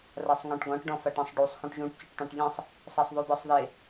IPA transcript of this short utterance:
rasˤŋɔ̃ʈɡɔ̃ʈ ɖɔ̃faʈãsˤɖusˤ xũʈʒũʈ cɔʈtˤẽʈʎẽsˤ | sasˤðˤud̪ɔsˤðe

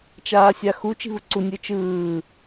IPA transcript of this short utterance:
t͡ʃaːsʲaxu t͡ʃi̤vɯǀu nʲɯt͡ʃɯː

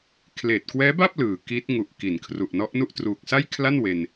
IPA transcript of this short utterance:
kʰleː˨˩t̚kwɛː˦˥ba˥˩p̚ lɯː˨˩ki˦˥t̚ ŋu˨˩ʔki˩˦n kʰru˨˩ʔnɔ˦˥ʔnu˥˩ʔ truː˨˩k̚sa˥˩jkʰla˥˩nwe˧n

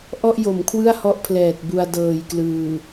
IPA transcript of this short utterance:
ʔɔ˥˩ʔjo˩˦mkʰwɯ˥˩a̯hɔ˦˥ʔ pʰlɛː˨˩t̚bu˧a̯ dɤː˨˩jklɯː˨˩

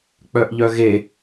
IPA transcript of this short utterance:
k͡pœʔʎœɣe

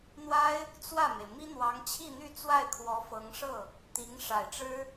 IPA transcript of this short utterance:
n̪wa˥ɪ̯ | t͡swä˥˩me˩ɪ̯ mi˥n̪wɑ˧˥ŋt͡ɕʰi˥˧n̪y˥˧ t͡swa˥˩ɪ̯kʰwɔ˧˥ fɤ˧˥ŋʂɤ˥˩ | t̪i˧˥ŋ ʂa˨˩ɪ̯ʈ͡ʂɻ̩˥

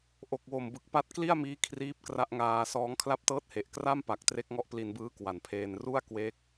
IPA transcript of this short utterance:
ʔo˨˩k̚wo˨˩mbɯ˨˩k̚ pa˦˥t̚ kli˥˩a̯miː˦˥ kʰriː˦˥p̚kra˦˥ʔŋaː˧sɔː˦˥ŋ kʰla˦˥p̚tɤː˦˥t̚he˨˩ʔ kra˥˩mpa˨˩k̚ tre˦˥k̚ŋɔ˦˥ʔpli˧nbɯː˦˥ kwa˩˦npʰeː˧n ru˥˩a̯kwe˦˥k̚

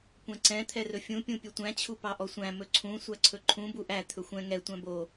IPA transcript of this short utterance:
kʷɛ̃ǀɛ̃ t̪ʰɛrɵfʲũ pʲũpʲɵtʷæ̃ t͡ɕʰupɑʔɔsʷæ̃ mɵǀʰũ sʷæǀʰɵǃʰũ buʔæ t̪ʰɵxʷɛ̃ ŋɛ tʷæ̃bo

